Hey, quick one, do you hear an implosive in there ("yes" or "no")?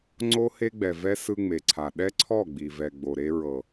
yes